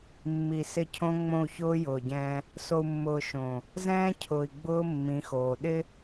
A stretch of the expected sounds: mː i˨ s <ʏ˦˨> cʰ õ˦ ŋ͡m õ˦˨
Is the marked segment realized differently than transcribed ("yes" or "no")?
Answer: yes